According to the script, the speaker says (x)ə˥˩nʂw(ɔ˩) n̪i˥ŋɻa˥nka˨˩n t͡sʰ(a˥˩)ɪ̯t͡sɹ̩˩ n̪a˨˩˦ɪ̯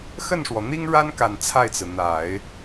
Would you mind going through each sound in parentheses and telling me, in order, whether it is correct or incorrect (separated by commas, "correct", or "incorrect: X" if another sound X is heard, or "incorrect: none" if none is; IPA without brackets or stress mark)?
correct, correct, correct